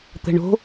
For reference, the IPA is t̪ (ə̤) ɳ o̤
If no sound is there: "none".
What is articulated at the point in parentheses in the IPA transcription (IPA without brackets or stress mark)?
ə̤